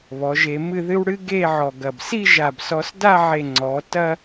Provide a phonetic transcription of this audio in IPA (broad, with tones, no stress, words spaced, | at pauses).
βɔ˩˧ ʒe˧mɨ˥˧ðɨ˥w ɽɨ˥ɡe˥˧ʕɔ˧˩ɡɐ˧˩b si˥˧ʒa˧˩bsɔ˧s da˥˧ʕe˧˩ ŋ͡ǀɔ˩˧ tɐ˥